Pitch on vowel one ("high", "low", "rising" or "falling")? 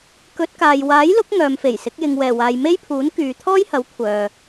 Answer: rising